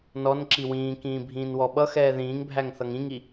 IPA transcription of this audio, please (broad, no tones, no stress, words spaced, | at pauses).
nɔnǁi wĩːkĩː bʱĩːnwɔɓʌxɛː ðĩːŋbʱæŋ θʌŋĩŋi